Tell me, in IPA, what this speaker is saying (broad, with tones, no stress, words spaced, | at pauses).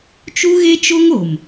t͡ʃu˦ɣe˦t͡ʃo˦ŋ o˨m